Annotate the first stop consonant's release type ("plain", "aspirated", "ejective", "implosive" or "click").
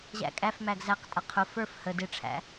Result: ejective